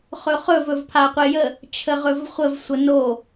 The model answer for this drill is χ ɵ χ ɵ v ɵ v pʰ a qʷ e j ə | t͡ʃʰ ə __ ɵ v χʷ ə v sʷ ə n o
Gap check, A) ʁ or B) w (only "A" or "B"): A